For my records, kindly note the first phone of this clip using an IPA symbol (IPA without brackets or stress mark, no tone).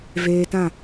v